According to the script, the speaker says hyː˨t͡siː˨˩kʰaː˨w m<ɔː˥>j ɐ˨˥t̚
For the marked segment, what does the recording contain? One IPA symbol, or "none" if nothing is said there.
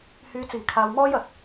ɔː˥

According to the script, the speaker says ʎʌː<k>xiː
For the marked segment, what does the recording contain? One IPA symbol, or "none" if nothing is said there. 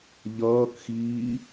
k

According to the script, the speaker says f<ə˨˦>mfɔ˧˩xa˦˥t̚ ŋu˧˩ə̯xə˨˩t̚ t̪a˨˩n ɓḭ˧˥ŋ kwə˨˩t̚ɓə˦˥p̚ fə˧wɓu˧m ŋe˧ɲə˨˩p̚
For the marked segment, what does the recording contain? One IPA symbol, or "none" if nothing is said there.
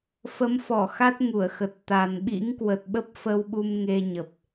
ə˨˦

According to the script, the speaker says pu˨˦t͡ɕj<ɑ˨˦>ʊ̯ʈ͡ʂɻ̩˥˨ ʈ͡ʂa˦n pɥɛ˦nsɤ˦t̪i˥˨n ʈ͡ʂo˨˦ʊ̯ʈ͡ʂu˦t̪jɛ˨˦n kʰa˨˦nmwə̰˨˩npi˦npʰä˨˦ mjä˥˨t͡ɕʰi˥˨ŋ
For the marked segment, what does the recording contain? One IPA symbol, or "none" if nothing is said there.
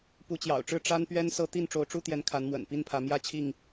ɑ̰˨˩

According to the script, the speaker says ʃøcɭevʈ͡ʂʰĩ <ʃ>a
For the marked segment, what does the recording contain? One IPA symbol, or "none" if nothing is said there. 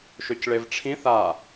θ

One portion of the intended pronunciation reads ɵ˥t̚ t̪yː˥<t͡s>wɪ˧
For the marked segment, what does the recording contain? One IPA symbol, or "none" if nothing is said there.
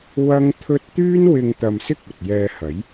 n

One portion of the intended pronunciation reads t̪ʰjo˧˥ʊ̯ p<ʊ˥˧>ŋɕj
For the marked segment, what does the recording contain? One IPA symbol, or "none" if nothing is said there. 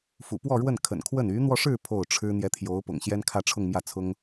ʊ̰˨˩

